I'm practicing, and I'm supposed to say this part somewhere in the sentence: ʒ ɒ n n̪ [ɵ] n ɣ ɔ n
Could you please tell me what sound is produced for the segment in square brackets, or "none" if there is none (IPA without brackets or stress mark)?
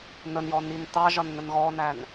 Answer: ə